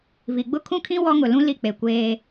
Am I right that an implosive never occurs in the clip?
yes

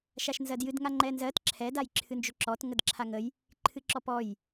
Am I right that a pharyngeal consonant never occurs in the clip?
yes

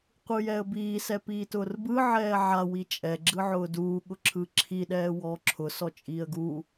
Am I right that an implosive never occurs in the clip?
no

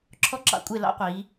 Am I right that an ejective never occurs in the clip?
no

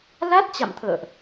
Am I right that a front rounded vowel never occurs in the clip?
yes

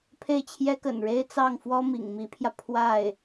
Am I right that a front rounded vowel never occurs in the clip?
yes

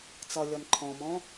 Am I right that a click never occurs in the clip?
no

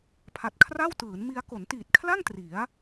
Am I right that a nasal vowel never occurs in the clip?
yes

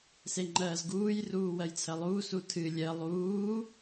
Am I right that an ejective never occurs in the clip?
yes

